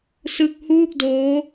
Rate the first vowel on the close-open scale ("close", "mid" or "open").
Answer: close